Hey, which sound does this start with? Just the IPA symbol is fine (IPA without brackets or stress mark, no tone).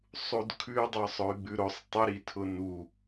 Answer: sˤ